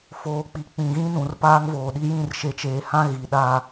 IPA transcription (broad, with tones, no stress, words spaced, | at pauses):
foː˨k͡pi˨ k͡pĩ˨ɣĩ˦ nũ˨rpaː˦ŋvoː˨ɗi˦ jĩ˦˨rʃe˨t͡ʃeː˨ hã˦ ɣi˨ ɗa˦